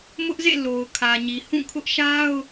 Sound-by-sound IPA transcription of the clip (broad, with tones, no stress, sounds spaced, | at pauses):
m ʊ˦ ʔ z ḛ˦˨ l o˨ ʊ̯ kʰ ä˨ ɲ i˨ h ũ˦˨ kʰ ʊ˦ ʔ ʃ a˦ ʊ̯